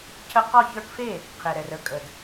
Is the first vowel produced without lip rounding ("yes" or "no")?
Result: yes